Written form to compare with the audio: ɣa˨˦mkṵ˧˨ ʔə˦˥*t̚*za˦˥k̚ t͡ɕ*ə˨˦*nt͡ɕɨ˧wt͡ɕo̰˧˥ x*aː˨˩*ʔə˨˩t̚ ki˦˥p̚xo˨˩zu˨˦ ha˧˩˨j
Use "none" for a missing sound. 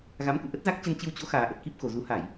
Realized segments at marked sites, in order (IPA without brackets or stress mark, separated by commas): t̚, ə˧, aː˨˩